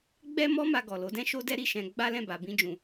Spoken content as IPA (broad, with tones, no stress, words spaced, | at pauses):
ɡ͡bɛ˦mɔ˦ma˧ ɡɔ˨lo˨˦dɛ̃˦ ʃo˦dɛ˦ɾi˦˨ʃɛ̃˧ ɡ͡ba˦lɛ̃˦˨ ba˧bĩ˦d͡ʒũ˧